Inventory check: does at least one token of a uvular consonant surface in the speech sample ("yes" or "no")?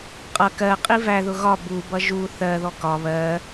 yes